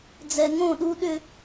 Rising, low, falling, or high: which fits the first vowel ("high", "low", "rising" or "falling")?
low